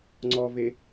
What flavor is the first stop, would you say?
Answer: click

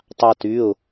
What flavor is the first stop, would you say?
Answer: plain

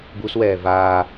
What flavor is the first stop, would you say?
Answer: plain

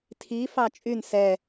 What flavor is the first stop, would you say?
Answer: aspirated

